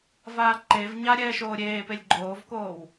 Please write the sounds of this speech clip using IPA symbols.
v aː ǃ e v ɲ a ɾʲ ɛː ʃ oː ɾʲ eː p e lʲ ɡ͡ǃ oː v k oː w

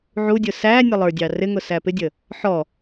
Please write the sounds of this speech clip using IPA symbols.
ʕ u dʲ ʊ s æ nʲ ʌ lˠ ə˞ dʲ ɑ r ɪ ŋ ʊ s æ p ɪ dʲ ə | ħ ɔ

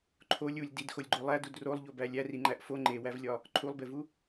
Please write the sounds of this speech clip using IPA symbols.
ǃʰ o lʲ u lʲ d i d x o lʲ ɡ͡ǃ o lˠ æ d u d r o lˠ ʎ o b æ lʲ æ r i ŋ͡ǃ æ ʔ f o ŋ͡ǃ e w æ v lʲ ɒ | ǃʰ u lˠ b e v u

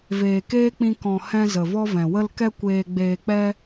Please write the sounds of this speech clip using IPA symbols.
v eː˨ k eː˦ k͡p ĩ˧ k ɔ̃˨ h ɛ̃˧ z ə˨ v ɔ˦ v ɛ̃˨ w ə˧ l k ɛ˦ kʷ eː˧ ɡ͡b eː˧ k͡p ɛ˦

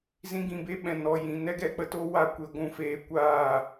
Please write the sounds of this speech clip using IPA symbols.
z ĩ˧ ɡ ĩ˨ b e˦ ɓ ɛ̃˨ n ɔ˨ j ĩ˨ n ɛ˦ ɡ ɛ˧ k͡p ə˦ t o˦ w a˦ kʷ e˧ ɡʷ ũ˦˨ f eː˦ kʷ aː˦˨

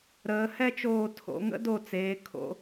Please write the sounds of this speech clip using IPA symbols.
ɾ əː˩˧ h ɛ˥˧ t͡ʃ oː˧˩ tʰ o̰˩˧ ŋ ə̰˥ d o˧˩ t͡s eː˩˧ kʰ o̰˩˧

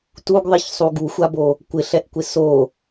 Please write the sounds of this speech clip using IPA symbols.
t u ɡ ðˤ i ç sˤ u ɡ u xʷ a b o | kʷ ɪ ɬ ɛ ʔ kʷ ɪ s o

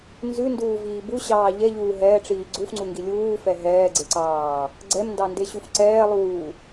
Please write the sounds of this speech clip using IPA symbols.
n z ʉ n d uː v iː b u ɕ ɑː ʎ ɛ ʎ uː ɦ ɛː ʈ͡ʂ iː ɡ͡ǀ u f ŋ͡ǀ u ŋ ɡ i lʲ uː f ɛ ɦ ɛː ɡ͡ǀ e ǀ ɑː | ɡ͡ǀ ɛ m n d ɑ n d e ɕ u f ǀ ɛː lˠ uː

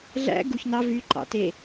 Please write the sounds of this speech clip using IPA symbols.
ɮ æ̰ ɡ u ç n ɑ v y ǃ ɑ̰ t e

